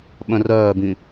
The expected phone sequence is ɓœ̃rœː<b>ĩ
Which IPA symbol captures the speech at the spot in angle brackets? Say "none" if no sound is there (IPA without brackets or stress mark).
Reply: b